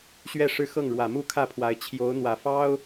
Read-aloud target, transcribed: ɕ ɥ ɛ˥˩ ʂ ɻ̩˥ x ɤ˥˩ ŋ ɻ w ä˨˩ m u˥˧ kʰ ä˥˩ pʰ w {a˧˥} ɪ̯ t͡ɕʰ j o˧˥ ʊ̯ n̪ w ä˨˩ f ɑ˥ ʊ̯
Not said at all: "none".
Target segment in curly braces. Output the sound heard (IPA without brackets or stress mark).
a˧˥